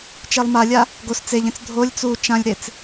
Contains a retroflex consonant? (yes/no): no